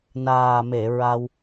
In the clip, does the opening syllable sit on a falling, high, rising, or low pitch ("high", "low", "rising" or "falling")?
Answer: low